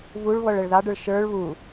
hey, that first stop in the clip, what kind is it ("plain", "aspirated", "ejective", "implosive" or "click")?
plain